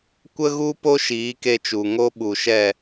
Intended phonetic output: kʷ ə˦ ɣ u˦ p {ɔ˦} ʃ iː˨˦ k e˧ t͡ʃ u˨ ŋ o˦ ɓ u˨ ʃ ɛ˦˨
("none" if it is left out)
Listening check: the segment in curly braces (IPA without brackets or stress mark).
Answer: o˦